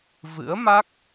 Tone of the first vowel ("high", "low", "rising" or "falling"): rising